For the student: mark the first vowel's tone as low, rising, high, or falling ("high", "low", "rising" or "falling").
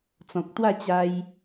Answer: low